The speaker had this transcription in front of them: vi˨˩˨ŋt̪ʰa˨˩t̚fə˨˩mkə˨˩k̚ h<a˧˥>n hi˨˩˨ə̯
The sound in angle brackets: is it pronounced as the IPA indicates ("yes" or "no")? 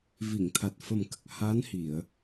yes